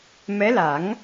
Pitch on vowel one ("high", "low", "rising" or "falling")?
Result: rising